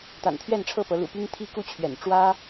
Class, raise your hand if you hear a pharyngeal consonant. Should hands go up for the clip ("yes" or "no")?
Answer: no